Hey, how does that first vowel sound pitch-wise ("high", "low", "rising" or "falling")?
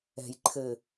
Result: low